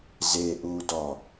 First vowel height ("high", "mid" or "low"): mid